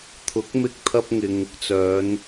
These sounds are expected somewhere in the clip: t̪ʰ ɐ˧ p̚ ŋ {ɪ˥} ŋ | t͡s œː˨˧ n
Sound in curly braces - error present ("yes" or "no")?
yes